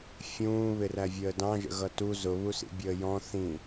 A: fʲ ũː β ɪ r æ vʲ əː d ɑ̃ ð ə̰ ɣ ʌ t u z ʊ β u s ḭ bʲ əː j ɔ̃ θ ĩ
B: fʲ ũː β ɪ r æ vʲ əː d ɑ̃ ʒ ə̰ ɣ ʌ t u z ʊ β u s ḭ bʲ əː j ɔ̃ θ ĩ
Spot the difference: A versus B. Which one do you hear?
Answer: B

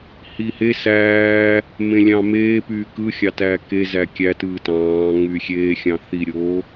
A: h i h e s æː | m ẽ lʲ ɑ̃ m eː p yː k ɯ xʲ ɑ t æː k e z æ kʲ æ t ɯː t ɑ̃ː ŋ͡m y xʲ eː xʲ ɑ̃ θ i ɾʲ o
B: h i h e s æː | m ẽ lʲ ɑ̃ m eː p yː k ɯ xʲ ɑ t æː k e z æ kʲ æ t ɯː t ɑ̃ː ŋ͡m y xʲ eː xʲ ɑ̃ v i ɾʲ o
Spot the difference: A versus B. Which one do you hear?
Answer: A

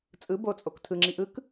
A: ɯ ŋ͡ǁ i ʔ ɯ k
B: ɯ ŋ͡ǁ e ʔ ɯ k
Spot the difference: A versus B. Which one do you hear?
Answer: A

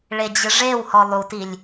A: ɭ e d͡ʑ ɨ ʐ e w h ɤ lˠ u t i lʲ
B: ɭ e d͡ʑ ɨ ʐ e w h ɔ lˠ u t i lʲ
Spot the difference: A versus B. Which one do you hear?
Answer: B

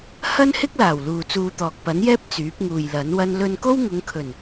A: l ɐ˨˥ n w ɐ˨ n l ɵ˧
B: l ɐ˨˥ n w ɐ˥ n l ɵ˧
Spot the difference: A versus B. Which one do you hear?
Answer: B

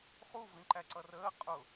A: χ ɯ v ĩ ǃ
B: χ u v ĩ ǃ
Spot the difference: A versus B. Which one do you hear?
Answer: B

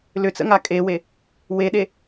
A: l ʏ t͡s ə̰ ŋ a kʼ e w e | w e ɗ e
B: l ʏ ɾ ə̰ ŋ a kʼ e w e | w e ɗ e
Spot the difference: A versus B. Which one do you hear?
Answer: A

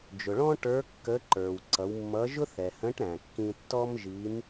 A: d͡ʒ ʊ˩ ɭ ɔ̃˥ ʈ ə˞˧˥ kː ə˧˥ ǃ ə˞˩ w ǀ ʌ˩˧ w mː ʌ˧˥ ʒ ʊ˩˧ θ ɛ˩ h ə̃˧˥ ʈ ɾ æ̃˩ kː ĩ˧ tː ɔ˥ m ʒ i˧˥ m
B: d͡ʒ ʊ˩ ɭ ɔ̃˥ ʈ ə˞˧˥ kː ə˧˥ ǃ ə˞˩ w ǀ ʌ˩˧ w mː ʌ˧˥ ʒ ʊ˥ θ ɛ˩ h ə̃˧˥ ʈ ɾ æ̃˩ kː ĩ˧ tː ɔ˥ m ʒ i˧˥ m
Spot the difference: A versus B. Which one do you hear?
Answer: B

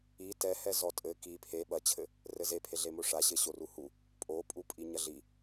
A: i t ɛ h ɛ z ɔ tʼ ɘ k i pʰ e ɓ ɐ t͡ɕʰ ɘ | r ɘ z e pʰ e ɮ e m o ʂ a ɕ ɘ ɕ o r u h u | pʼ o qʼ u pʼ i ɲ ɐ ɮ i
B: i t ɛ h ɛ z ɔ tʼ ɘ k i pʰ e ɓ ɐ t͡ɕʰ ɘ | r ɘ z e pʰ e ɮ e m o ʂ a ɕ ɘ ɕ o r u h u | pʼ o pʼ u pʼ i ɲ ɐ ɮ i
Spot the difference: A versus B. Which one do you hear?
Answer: B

